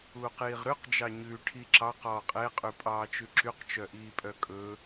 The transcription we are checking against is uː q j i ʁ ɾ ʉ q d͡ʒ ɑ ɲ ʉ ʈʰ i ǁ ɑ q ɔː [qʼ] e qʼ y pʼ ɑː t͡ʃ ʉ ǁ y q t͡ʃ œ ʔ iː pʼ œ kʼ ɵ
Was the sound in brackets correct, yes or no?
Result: yes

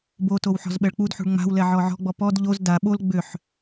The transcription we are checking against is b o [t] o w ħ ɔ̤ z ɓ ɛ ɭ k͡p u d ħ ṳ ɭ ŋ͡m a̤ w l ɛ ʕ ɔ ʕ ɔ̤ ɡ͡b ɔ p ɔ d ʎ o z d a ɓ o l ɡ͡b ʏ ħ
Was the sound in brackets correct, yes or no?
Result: yes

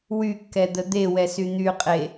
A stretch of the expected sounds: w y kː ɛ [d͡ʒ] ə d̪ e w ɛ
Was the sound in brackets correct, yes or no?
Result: no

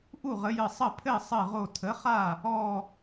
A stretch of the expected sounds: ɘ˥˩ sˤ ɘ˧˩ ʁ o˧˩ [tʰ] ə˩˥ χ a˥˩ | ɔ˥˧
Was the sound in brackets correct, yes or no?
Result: yes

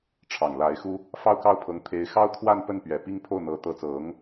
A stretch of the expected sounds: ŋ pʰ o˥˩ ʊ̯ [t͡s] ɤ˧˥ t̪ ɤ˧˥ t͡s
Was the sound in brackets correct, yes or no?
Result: no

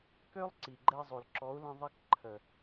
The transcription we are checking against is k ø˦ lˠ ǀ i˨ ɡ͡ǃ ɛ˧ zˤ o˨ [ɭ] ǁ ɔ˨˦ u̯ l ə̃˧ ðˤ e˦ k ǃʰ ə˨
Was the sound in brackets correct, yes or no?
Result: no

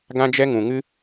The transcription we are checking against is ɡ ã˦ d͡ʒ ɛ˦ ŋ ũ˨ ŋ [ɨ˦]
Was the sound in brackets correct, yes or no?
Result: yes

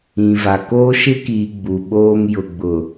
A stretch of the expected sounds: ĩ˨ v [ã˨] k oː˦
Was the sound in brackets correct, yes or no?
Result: no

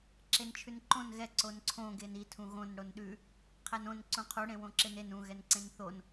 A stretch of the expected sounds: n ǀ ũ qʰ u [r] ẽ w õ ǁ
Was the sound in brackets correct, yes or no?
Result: no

